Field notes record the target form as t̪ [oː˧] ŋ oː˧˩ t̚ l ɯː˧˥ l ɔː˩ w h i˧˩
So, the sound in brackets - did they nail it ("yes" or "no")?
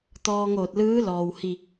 no